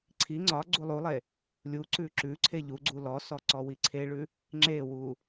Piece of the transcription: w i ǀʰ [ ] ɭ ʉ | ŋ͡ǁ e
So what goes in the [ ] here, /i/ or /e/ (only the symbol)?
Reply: e